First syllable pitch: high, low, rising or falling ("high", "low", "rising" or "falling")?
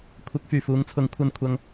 rising